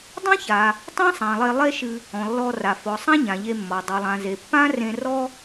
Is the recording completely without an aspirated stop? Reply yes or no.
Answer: yes